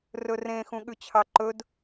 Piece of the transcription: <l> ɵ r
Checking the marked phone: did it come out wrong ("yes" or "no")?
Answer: yes